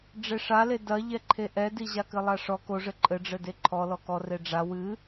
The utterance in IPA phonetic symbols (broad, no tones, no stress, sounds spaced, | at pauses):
ɖ͡ʐ e ʂ a l e d ɐ ʎ ɛ ǃʰ e ʔ ɛ d i ʑ a k ɘ lˠ a ʂ ɔ k o ʐ ɘ ǃʼ ɘ ɖ͡ʐ ɘ d e ǃʰ ɔ l ɔ k ɔ r e ɖ͡ʐ a w ɨ